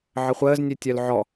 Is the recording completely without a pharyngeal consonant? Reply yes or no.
no